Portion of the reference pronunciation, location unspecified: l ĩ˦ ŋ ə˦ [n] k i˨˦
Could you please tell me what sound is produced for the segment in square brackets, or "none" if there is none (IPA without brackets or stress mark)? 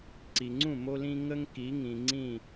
ŋ